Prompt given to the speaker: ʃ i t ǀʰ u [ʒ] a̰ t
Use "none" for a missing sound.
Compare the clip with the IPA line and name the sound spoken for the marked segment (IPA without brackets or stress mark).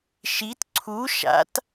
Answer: ʃ